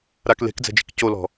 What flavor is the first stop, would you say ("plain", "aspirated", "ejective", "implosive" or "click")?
plain